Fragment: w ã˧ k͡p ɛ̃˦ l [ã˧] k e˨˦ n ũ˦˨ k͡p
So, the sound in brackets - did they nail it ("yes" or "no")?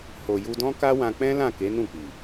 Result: no